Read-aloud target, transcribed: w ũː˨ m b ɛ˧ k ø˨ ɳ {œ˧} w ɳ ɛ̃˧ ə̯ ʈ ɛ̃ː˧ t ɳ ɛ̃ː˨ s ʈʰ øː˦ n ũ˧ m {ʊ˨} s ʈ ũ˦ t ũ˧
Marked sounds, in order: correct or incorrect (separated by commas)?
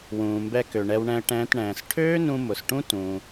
incorrect, correct